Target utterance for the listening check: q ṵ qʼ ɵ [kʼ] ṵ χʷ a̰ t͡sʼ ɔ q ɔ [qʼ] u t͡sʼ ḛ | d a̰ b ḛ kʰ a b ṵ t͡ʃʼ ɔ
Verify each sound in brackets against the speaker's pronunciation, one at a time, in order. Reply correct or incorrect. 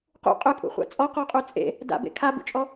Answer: correct, correct

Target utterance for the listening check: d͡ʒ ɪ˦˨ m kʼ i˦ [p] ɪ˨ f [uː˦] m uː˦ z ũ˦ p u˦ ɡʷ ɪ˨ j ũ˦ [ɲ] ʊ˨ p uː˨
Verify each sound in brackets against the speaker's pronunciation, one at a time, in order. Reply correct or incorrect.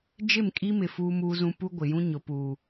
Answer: incorrect: m, correct, correct

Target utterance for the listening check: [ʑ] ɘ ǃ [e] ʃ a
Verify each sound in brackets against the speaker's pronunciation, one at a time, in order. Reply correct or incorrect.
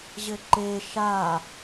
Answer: correct, correct

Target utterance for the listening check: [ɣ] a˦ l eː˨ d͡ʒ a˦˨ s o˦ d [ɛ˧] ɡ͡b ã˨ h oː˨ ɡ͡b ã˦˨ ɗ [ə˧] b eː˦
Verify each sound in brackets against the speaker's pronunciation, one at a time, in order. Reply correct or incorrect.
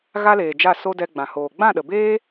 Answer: correct, correct, incorrect: ə˨

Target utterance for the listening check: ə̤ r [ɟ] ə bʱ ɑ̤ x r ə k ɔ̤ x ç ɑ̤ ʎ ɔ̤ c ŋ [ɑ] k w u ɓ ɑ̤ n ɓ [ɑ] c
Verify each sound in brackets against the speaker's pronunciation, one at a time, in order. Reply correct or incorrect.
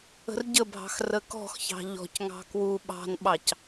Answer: correct, incorrect: ɑ̤, correct

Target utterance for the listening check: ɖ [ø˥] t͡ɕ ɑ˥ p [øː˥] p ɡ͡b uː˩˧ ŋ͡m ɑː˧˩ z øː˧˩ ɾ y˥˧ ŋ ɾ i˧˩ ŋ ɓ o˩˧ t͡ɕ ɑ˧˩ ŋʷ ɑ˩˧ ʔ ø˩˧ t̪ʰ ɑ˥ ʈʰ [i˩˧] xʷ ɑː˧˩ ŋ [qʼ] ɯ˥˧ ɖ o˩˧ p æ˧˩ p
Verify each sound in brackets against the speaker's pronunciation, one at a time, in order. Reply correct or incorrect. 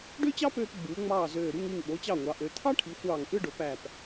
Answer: correct, incorrect: øː˧, correct, incorrect: ʔ

